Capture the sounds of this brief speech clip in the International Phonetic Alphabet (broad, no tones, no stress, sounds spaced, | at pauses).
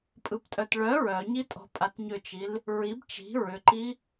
pʼ ɯ p tʼ œ t ɭ œ ɹ œ ɲ i tʼ ɔ̤ pʼ a t ɲ ʏ t͡ʃ i l | ɹ i b t͡ʃ i̤ ɹ ʏ ǃ i